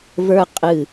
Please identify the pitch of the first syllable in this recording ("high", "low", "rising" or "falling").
high